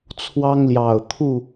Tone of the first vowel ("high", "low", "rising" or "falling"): high